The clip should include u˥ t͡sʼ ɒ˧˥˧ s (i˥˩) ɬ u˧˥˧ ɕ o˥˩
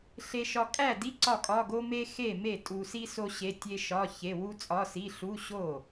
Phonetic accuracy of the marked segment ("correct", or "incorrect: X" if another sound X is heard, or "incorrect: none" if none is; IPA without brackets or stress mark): incorrect: i˧˥˧